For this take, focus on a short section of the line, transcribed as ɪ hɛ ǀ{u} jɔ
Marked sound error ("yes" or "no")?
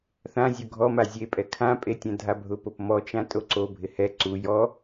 no